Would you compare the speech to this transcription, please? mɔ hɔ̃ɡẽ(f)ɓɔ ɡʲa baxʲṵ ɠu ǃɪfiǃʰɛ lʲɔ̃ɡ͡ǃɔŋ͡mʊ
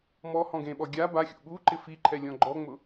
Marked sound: incorrect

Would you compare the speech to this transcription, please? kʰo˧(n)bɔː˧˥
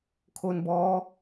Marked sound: correct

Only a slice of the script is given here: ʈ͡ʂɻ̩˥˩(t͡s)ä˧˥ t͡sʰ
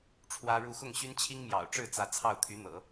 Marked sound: correct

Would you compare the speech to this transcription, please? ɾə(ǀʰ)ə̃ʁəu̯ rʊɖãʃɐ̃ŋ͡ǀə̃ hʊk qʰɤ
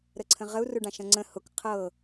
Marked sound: correct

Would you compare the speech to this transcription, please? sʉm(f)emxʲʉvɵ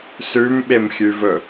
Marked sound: incorrect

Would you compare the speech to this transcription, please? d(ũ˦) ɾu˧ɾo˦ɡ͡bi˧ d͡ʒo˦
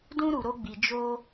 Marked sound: correct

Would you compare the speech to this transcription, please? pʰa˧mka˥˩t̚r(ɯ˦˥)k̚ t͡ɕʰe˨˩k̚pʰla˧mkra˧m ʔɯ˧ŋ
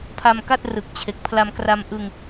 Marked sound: incorrect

